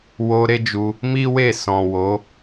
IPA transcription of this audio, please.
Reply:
w o˧ ɾ e˦ d͡ʒ u˧ | m i˦ w e˦˨ s ɔ̃˨ w o˨˦

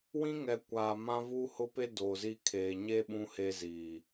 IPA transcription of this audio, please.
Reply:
w ĩ˦ ŋ ɛ˨ kʷ aː˨ m ã˦ v uː˦ h ʊ˦ p e˦ d oː˨ z i˦ kʰ eː˨ ɲ e˦ ɓ ũ˦ h e˦ z iː˨

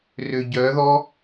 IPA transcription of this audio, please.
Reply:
r ø ɟ œ ð ɔ

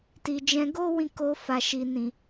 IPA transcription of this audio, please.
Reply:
t i˨ d͡ʒ ɛ̃˧ ɡ o˦ w ĩ˧ k o˧ f a˨ ʃ i˨ n ĩ˨

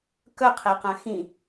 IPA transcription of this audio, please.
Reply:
k œ qʰ e q ã x ĩ

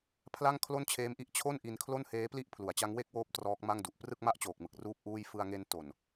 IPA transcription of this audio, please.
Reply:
pʰ l a˥˩ ŋ kʰ l o˥˩ n t͡ɕʰ eː˦˥ m ʔ i˦˥ ʔ t͡ɕʰ o˥˩ n ʔ i˧ n kʰ l o˥˩ n h eː˦˥ p l i˥˩ ʔ pʰ l u˨˩ a̯ t͡ɕ a˦˥ ŋ w e˥˩ k̚ w oː˦˥ p̚ t r ɔː˦˥ k̚ m a˥˩ ŋ d u˨˩ ʔ p r ɯ˥˩ k̚ m a˥˩ ʔ t͡ɕ oː˨˩ k̚ m ɯ˨˩ k̚ r uː˥˩ p̚ ʔ uː˥˩ j f ɯ˧ a̯ ŋ e˧ n t o˨˩ n

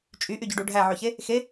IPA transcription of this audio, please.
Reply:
t͡ʃʼ y ʔ y ɟ ø ɖ u ɖʱ æ ʕ ø ç e | x e

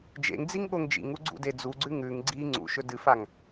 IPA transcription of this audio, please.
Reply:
d͡ʒ ḛ ŋ d͡z i ŋ ɠ o ŋ d͡ʒ ḭ ŋ u ɡ͡ǀ ṵ d e d͡z u ɡ͡ǀ ʉ ŋ ʉ ŋ ɡ͡ǀ i ŋ͡ǀ ṵ ʃ ɵ d ɨ f a ŋ

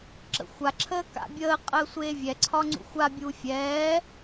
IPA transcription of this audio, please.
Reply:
ǁ ə̰ xʷ a ǁʰ əː k a̰ bʲ əː qʼ əː sʷ eː vʲ ɛ ǀʰ ɒ ŋ͡ǀ ṵ xʷ a bʲ uː fʲ ɛː

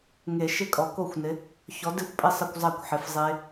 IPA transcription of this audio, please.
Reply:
ŋ e˨˩˦ ʃ ɪ˦˥ kʼ ɔ˨˩˦ k o˥˩ xʷ n ɪ˨˥ | ç ɔ˨˥ d ɪ˥˩ xʷ pʼ ɪ˥˩ sˤ ə˥˧ kʷ zˤ a˥˩ kʷ ħ ɪ˨˥ f zˤ e˦˥

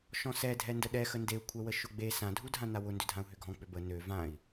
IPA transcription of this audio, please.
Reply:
ʃ ɔ̃ s ɛ dʱ ɛ n d ə ɗ ɛ x ə n d e u̯ kʷʰ ɛ w ə ʃ ʊ ɡ͡b e s ã dʱ u dʱ ã n a w ʊ n d ʏ dʱ ã u̯ ɦ ʏ ɡʱ ɔ̃ k͡p ʏ b ə n ø v ã i̯

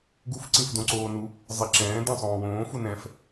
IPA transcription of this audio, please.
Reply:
ɡ u f ǀ ĩ f d õ ǀ oː n u | zˤ e ǁ ɛ̃ː d ɛ̃ sˤ õː w õː f u n ɛ̃ f

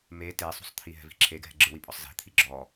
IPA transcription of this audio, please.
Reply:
m e t e sˤ ṳ sˤ t̪ʰ i ɦ ɛ̤ v i̤ ǁʰ e ɡʱ ɛ̤ ɡ͡ǁ ɯ w i pʼ ɔ sˤ z ɛ̤ t̪ʰ i ɡ͡ǁ ɔ

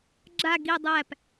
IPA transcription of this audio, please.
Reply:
ɡ͡ǁ a ɡ i dˤ æ p

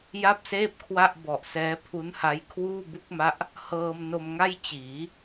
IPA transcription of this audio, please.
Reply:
j a˥˩ p̚ s eː˥˩ p̚ kʰ w a˥˩ ʔ b ɔ˨˩ ʔ s ɛː˦˥ pʰ u˦˥ n h a˦˥ j kʰ w uː˥˩ b u˦˥ k̚ m a˦˥ ʔ | h ɤː˧ m n o˧ m ŋ a˥˩ j t͡ɕ iː˩˦

